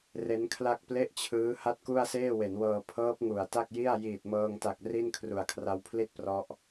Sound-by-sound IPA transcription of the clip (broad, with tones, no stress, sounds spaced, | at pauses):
r e˦˥ n kʰ l a˥˩ k̚ p l e˥˩ ʔ t͡ɕʰ ɯː˦˥ h a˥˩ t̚ k u˥˩ a̯ s eː˥˩ w e˩˦ n w ɤː˧ pʰ ɤː˦˥ p̚ ŋ u˨˩ a̯ t a˥˩ k̚ j i˥˩ a̯ j iː˨˩ t̚ m ɤː˧ ŋ t a˨˩ k̚ r i˥˩ n kʰ r u˨˩ a̯ kʰ r a˦˥ w pʰ l i˥˩ t̚ p r ɔ˦˥ ʔ